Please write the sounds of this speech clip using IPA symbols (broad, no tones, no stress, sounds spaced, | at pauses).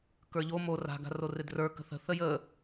k ə˞ ʎ o m o r a̤ ɡ a̤ r o r ɪ d r ə˞ k ə̤ θ ə̤ θ ə j ə